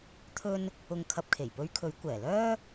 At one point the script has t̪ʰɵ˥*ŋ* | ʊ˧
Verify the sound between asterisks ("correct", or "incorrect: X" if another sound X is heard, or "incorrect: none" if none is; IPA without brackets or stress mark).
incorrect: n